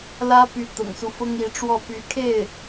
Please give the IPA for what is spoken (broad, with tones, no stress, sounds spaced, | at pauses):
l ä˥ p y˧˥ t̪ ʊ̰˨˩ ŋ s u˦ f ʊ˥ ŋ i˧˥ ʈ͡ʂ w ɔ˥˩ p y˧˥ kʰ e˥˩ ɪ̯